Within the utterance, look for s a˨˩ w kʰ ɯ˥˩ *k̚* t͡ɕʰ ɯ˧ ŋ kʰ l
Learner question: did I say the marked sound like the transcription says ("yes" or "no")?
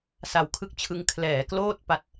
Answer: yes